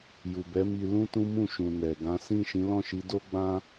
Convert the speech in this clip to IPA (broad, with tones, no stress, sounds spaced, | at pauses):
j u˨ b ɛ˨˦ m i˧ l ũ˦ t ũ˦ m ũ˦˨ ʃ ũ˨ n ɛ˨ ɡ ã˨˦ s ĩ˦˨ ʃ ĩ˨˦ l ɔ̃˦˨ ʃ i˨˦ d o˦ ɡ͡b ã˦